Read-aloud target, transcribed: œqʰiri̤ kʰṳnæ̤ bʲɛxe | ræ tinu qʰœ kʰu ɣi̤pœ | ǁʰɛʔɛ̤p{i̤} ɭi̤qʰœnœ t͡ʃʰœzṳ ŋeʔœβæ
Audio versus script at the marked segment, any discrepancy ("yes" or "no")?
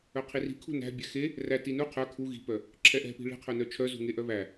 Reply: no